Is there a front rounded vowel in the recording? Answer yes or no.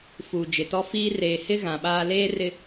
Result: no